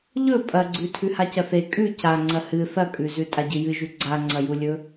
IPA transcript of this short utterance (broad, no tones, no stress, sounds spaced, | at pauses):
ʎ ɵ pʼ ɐ ɡ͡ǀ ʉ tʰ ʉ h a c ɐ θ e kʼ ʉ c a ŋ͡ǀ ɐ h ɨ θ ɐ kʼ ʉ z ʉ tʼ a ɟ ɨ j ɨ ʒ ʉ ɡ͡ǀ a ŋ͡ǀ ɐ j u lʲ ɵ